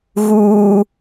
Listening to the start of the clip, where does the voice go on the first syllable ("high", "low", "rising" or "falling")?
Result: high